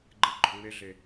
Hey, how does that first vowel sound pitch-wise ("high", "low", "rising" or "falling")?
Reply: low